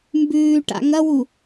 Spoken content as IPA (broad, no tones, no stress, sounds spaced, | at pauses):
m b ʉː ʈ a̰ ŋ ɐ w u